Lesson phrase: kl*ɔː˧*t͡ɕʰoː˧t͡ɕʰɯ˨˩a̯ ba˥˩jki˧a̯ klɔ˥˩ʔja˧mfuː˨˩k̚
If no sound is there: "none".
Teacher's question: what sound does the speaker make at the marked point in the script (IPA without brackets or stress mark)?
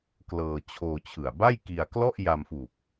ɤː˧